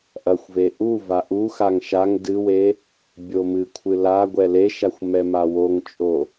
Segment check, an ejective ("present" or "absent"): present